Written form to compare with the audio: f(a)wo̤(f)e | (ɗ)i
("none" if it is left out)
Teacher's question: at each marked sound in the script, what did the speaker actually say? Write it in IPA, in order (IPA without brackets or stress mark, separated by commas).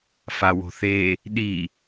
a, θ, ɗ